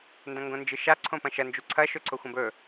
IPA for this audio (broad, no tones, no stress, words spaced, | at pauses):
ndɐ̃ŋɡõnd͡ʒɨʃa ǀʰõpɐ̃ʃɐ nd͡ʒuǀʰɐ ʃɵǀʰoxʷɐ̃bɵ